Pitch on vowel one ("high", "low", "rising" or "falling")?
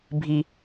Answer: low